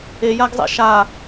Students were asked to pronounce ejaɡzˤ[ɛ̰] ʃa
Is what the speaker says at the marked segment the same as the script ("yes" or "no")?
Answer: yes